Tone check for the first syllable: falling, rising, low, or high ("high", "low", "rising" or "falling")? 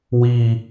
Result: falling